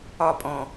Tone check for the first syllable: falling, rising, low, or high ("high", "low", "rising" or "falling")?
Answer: falling